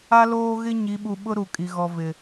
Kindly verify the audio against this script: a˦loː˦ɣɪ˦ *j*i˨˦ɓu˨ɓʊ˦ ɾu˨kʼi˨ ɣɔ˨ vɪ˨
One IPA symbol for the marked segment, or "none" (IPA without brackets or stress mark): ɲ